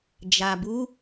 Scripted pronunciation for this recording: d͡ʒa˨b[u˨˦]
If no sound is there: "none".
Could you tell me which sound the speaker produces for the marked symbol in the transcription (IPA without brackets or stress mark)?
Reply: u˨˦